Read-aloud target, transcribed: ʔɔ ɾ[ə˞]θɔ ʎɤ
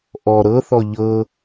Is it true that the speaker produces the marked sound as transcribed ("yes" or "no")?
no